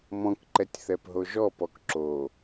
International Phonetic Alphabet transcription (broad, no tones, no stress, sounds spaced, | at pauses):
m ɔ̃ k ǃ ɛ tʲ θ ɛ p ɦ o ʒ ɔ p ɔ k ǁ o